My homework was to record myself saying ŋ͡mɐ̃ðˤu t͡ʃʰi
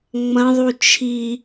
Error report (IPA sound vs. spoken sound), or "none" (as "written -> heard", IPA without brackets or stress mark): none